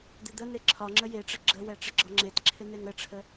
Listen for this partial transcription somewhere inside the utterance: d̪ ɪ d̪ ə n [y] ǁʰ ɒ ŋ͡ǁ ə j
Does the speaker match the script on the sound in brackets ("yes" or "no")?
no